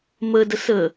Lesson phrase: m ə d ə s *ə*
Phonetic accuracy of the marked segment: correct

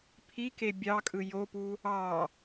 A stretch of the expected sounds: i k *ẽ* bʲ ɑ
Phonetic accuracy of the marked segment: incorrect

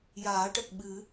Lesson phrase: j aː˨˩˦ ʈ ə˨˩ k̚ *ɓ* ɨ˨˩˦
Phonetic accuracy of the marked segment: correct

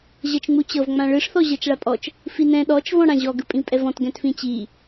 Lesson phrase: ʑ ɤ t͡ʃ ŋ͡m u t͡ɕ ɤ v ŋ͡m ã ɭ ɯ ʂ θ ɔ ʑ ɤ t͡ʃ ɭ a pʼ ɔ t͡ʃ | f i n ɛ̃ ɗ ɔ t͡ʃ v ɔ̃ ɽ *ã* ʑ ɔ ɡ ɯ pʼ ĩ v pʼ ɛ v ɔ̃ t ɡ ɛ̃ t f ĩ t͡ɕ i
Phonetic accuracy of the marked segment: correct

